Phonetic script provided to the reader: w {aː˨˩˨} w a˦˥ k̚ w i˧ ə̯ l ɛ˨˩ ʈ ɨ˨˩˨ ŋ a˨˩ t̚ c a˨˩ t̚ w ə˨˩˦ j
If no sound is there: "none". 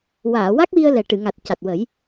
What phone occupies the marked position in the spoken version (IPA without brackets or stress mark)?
aː˨˩˨